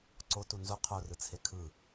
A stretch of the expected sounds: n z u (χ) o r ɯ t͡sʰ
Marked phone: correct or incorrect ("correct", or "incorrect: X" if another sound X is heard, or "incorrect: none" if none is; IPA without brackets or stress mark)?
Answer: incorrect: qʰ